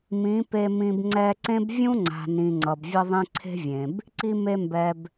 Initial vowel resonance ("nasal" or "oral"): nasal